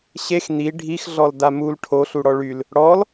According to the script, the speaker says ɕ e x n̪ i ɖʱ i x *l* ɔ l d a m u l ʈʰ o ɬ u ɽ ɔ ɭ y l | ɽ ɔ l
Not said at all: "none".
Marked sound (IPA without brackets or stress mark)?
ɮ